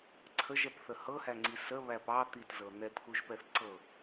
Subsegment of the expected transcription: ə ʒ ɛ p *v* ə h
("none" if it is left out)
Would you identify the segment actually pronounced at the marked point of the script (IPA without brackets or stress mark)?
θ